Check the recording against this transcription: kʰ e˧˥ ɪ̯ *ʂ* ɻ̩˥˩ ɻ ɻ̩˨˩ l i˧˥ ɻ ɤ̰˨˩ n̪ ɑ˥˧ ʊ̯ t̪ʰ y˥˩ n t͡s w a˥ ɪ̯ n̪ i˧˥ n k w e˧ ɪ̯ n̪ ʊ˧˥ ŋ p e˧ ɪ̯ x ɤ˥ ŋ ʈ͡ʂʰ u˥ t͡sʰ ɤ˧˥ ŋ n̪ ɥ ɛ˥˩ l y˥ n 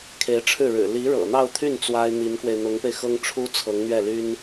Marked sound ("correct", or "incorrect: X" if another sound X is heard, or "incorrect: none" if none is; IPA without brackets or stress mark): incorrect: ʈ͡ʂʰ